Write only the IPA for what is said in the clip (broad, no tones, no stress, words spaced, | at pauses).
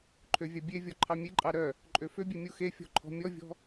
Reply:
ǃʰøvʲɑbʲevʲɔ ǃʰɑmʲeǃʼɑ ɾœ | ǃʼøføbʲe mʲuxefʲɔ̤ ǃʰɔ̤mʲɔvʲɔ̤